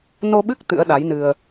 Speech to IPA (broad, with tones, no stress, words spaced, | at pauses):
no˧ɓɨ˦˥k̚ t̪ɨ̰˧˥ə̯ɗa˨˦jnɨ˧ə̯